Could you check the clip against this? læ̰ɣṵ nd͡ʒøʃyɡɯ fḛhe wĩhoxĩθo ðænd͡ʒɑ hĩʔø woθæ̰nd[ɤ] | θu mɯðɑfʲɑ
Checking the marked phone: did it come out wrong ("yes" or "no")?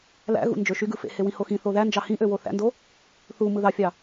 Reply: yes